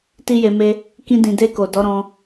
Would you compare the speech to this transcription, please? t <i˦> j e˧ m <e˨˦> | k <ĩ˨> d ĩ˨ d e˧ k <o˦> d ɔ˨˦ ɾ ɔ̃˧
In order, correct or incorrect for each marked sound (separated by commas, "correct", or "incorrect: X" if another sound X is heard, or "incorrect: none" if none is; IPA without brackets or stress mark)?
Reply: correct, incorrect: e˦, incorrect: ĩ˧, incorrect: o˨